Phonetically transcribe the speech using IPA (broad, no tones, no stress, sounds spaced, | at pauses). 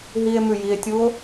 ɦ i e̯ m ʉ j i e̯ tʲ u o̯